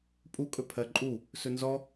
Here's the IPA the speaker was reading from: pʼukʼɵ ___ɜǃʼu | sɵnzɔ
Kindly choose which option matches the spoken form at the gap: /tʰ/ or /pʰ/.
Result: pʰ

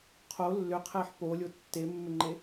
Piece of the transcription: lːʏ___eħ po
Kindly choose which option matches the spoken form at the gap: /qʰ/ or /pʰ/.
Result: qʰ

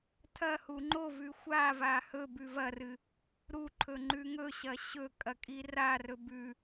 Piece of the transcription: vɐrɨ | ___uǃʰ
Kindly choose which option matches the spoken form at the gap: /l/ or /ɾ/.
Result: ɾ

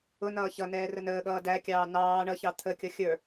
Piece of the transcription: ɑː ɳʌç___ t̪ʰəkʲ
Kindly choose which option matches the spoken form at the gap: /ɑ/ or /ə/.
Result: ɑ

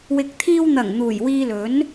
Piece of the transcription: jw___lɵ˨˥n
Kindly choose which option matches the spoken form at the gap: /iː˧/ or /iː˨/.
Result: iː˧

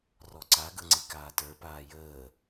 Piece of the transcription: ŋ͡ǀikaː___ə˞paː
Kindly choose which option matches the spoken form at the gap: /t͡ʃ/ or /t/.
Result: t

